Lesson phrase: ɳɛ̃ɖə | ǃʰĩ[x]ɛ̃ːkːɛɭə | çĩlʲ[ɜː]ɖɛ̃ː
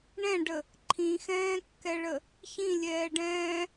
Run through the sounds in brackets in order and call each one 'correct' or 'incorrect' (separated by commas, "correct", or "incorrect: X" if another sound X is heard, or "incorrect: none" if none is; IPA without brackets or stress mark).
correct, incorrect: ɛː